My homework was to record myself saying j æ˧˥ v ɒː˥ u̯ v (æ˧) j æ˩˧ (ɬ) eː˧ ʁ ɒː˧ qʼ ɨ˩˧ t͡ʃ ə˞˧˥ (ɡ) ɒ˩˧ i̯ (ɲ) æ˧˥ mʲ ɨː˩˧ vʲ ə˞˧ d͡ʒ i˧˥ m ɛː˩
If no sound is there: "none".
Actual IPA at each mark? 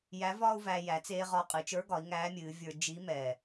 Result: æ˧, t͡s, ɡ, ŋ

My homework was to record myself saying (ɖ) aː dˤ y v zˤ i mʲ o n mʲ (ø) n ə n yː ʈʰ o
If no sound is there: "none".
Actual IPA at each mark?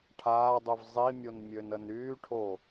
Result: ʈʰ, ø

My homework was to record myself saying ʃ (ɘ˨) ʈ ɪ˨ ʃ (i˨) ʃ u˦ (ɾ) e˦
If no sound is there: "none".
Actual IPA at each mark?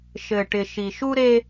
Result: ɘ˨, i˨, ɾ

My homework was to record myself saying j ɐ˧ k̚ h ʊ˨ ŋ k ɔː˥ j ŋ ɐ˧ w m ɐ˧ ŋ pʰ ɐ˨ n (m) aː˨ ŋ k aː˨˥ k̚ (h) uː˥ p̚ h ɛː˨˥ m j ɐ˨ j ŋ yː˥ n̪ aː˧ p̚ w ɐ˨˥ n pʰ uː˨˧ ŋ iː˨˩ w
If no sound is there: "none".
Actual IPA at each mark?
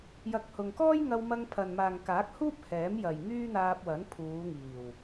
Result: m, h

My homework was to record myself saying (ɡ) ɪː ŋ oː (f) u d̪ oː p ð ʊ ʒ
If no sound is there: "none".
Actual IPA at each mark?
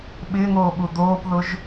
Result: ɓ, ɓ

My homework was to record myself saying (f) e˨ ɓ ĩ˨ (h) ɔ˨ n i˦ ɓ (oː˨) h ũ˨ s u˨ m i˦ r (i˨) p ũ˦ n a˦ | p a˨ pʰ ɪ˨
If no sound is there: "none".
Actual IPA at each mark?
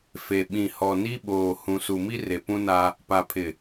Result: f, h, oː˨, e˨

